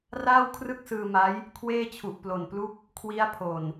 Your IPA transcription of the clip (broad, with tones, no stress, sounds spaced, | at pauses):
r aː˥˩ w kʰ r ɯ˥˩ k̚ s ɯː˧ m a˦˥ j | kʰ w eː˥˩ t͡ɕʰ u˨˩ ʔ p l o˨˩ n p l u˥˩ k̚ | kʰ w i˦˥ a̯ pʰ o˨˩ n